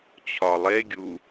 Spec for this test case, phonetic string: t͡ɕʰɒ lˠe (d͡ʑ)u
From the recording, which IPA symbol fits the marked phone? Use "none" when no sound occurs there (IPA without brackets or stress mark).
ɡʲ